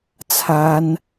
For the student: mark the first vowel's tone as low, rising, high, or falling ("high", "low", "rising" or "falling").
high